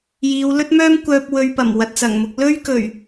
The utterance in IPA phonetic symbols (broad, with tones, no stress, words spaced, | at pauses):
jiː˨˧wlɵ˥t̚mœː˥m kʷœː˧p̚ wɵ˧ɥpɐ˨˩m wɐ˨t̚t͡sɐ˨˩ŋmʊ˧k̚ lɵ˥ɥkɵ˨˩ɥ